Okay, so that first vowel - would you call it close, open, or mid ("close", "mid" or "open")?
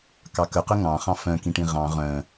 open